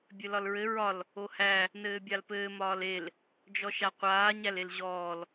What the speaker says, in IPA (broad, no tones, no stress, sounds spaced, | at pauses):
bʲ ɘ l ɒ l ɹ ɘ ɹ ɒ l | o h æ | n ɘː bʲ a l p ɘː m ɒː l e l | d͡ʒ ɔ ʃ a qʷ aː ɲ æ l e l ʑ ɔː l